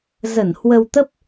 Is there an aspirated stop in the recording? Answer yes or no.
no